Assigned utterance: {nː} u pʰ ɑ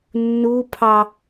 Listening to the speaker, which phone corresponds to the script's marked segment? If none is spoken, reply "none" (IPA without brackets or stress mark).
nː